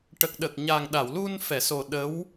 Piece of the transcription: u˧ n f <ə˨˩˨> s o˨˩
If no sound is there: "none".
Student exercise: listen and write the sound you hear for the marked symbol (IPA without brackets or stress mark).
ɛ˨˩˨